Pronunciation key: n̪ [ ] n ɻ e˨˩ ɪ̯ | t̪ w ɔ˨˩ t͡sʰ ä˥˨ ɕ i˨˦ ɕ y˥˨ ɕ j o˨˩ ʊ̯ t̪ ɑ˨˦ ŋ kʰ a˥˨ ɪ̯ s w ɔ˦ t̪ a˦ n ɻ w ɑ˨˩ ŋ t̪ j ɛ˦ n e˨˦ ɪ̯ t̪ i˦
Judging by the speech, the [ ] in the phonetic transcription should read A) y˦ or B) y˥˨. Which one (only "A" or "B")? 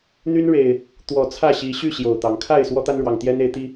A